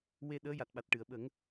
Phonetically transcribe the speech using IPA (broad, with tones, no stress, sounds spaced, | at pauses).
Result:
w e˧ ɗ əː˧˥ j a˨˩ t̚ ɓ a˨˩ t̚ ʈ ɨ˨˩˨ ə̯ ɓ ə˨˩˦ ŋ